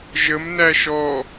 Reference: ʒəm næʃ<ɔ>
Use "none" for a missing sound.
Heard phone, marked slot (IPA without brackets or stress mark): ɔ